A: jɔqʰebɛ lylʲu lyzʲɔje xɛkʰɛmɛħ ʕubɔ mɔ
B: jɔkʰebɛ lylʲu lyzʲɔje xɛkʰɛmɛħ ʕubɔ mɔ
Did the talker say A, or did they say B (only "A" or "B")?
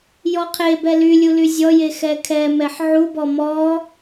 A